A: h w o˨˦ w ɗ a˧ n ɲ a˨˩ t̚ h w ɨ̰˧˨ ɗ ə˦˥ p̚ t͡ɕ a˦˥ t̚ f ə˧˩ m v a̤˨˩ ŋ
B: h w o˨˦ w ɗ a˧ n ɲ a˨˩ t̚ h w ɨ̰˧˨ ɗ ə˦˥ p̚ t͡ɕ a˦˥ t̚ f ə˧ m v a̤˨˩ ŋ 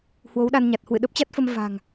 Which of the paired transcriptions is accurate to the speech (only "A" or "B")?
B